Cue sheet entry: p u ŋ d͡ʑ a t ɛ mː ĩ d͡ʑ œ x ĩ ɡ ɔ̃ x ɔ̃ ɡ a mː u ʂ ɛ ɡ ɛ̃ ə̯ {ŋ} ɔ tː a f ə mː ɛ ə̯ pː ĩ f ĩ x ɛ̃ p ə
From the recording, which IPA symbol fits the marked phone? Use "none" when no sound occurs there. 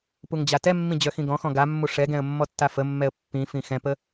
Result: mː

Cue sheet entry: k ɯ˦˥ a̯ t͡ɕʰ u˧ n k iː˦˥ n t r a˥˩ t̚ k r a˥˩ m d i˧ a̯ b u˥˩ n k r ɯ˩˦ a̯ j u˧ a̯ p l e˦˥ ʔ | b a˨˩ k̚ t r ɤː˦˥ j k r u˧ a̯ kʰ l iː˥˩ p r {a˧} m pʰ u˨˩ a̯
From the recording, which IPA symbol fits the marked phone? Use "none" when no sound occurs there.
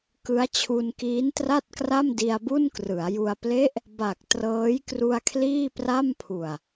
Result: a˥˩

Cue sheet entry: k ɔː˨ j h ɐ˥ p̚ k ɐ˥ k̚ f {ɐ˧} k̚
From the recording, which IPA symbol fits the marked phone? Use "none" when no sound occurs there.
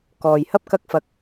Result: ɐ˧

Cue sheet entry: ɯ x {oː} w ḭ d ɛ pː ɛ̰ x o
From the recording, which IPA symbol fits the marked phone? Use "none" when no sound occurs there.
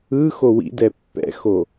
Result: o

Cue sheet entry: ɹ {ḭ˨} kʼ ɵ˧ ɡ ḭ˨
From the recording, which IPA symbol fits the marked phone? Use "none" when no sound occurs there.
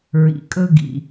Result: ḭ˨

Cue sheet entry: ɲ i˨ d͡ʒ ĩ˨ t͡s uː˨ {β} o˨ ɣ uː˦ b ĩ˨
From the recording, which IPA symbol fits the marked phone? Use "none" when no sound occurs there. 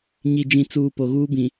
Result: p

